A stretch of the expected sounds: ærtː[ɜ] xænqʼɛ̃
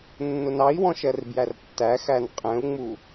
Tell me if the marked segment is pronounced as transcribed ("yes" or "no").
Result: no